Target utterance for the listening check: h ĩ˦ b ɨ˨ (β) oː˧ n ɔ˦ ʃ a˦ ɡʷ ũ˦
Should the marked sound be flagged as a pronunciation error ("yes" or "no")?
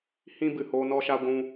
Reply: yes